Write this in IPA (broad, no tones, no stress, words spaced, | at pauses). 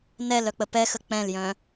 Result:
nɛl œk͡pəpɛxə k͡pɛ̃ljœ̃